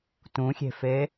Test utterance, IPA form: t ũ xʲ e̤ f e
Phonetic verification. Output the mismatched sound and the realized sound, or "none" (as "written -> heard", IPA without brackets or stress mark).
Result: none